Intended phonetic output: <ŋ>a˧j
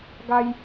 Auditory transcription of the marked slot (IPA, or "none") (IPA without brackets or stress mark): ɡ